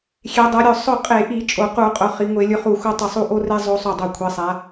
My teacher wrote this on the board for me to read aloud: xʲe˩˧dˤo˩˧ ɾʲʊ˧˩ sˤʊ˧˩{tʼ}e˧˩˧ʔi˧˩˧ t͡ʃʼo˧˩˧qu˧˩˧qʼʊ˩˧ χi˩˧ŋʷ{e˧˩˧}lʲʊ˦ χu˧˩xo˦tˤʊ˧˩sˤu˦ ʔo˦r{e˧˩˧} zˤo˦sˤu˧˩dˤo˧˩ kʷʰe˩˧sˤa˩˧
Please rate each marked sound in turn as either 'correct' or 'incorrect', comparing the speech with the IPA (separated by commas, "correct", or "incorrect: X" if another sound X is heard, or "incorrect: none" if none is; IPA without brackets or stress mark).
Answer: incorrect: qʼ, correct, incorrect: e˦